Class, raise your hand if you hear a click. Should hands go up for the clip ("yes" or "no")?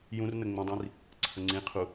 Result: yes